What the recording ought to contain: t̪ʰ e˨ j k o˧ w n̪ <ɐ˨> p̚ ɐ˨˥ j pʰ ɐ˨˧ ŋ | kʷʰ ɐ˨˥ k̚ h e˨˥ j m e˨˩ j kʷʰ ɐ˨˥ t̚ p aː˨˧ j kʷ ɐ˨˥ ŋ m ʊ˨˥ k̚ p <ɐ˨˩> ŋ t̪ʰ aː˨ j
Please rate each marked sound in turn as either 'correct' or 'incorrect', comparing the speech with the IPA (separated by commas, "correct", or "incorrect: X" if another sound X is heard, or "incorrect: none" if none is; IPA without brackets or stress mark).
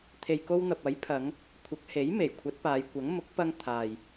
correct, incorrect: ɐ˧